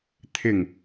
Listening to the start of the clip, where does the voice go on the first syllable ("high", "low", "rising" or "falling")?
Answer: low